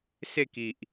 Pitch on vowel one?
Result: falling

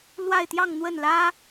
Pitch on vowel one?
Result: falling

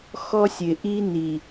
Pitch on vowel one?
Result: high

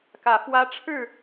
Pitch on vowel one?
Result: rising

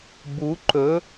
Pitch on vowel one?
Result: rising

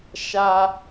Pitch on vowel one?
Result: high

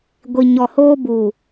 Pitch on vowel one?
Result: low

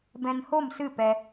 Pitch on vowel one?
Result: low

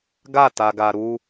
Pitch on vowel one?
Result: falling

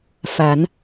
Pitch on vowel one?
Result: rising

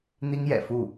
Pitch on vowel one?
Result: high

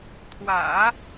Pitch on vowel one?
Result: low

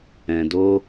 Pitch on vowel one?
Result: low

